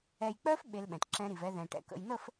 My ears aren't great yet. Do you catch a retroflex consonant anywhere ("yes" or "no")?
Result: yes